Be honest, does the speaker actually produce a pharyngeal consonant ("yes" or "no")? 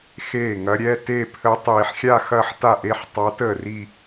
yes